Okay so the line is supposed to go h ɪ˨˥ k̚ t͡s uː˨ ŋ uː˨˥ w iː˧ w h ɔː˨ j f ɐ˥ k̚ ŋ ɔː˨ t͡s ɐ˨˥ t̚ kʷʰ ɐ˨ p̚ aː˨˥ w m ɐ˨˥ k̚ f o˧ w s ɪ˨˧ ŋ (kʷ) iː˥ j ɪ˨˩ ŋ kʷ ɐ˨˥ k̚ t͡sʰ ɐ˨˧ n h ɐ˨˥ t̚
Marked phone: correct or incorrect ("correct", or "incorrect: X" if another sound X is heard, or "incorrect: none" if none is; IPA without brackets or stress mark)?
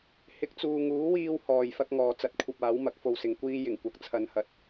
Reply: correct